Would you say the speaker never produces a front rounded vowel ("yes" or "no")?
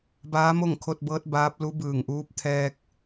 yes